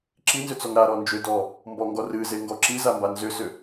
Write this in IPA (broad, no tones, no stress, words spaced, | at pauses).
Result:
ǁinzʏt͡sɔŋ ɾaɾɔ nd͡ʒʏdɔ | mbɔŋɡɔ rɨzeŋɡɔ ǁizamba nzʏsʏ